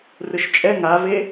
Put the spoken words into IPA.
rɯʃt͡ʃʼɛ ŋave

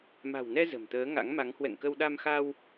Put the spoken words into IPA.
ma̤˨˩wnɛ˧ zə̤˨˩mt̪əː˨˦ŋa̰˧˥ŋma˨˦ŋ hwɛ̰˧˨ŋkə˧wɗa˧mxa˧w

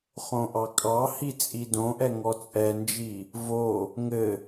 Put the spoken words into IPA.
χõʔɑkʼɑhi t͡sʼidõʔɛ ŋɔt͡sʼɛnd͡ʒi | vo | ŋɘ

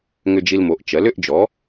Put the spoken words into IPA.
ŋʏ˧d͡ʒi˧lmo˩˥ʔ t͡ʃɜ˩˥lʏ˩˥ʔd͡ʒɔ˩˥

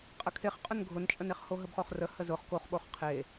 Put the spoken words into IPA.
qʼəkʰeχqʼʊn ɡʱʊnt͡ʃʼəneχ hoɦəbχoχrə həzʊχ koχɓoχ qʰe

